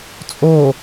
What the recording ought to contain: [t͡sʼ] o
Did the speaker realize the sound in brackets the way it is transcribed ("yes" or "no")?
yes